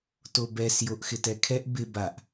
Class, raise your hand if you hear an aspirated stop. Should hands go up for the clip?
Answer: yes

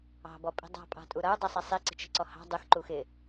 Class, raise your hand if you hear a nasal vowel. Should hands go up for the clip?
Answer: no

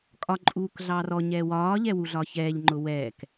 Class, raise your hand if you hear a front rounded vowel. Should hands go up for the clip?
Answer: no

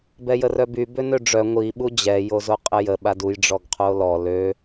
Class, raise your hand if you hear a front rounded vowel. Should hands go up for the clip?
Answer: yes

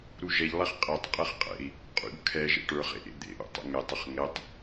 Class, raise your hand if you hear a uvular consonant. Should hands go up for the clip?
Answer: yes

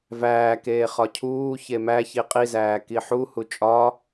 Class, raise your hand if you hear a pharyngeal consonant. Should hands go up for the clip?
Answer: yes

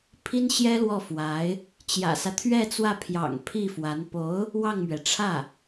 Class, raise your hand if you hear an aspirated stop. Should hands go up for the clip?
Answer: yes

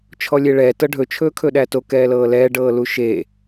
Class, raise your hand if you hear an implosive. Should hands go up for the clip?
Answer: yes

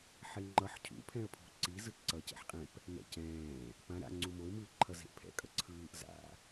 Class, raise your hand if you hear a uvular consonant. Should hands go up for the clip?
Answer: yes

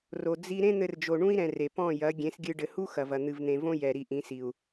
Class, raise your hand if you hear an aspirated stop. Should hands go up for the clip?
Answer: no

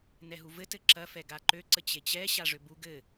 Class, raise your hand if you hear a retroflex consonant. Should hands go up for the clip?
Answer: yes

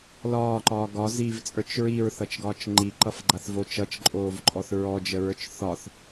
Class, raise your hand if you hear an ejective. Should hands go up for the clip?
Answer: yes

